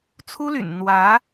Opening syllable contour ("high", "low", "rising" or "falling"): high